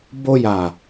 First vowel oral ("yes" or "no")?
yes